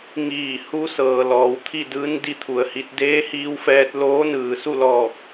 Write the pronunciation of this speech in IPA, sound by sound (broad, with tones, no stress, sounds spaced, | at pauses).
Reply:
ŋ iː˧˩ h u˧˥ s ɤː˩ l ɔː˩˧ w t̪ʰ i˥˨ d ɯː˧˥ n d i˧˥ t̪ʰ u˩ ə̯ h i˧ t̚ d eː˧˥ h iː˧ w f ɛː˧ t̚ l oː˧˥ n ɯː˩ s u˥˨ l ɔː˧˩ k̚